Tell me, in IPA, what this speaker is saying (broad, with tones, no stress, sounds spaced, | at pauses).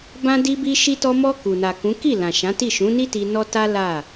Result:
b ã˧ d i˧ b i˧ ʃ i˧ t ɔ˧ m ɔ˧ k u˨ n a˨ k ũ˨˦ k i˦˨ l ã˨ ʃ ã˨˦ t i˦˨ ʃ ũ˨˦ n i˦ t i˧ n ɔ˦ t a˦ l a˦˨